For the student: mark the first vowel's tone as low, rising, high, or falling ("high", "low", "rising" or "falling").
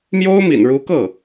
high